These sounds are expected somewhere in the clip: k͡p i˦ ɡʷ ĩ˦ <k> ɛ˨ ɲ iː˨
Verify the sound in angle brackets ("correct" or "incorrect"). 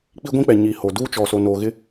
incorrect